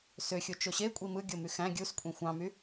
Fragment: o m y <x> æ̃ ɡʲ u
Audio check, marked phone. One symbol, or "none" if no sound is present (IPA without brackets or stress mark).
x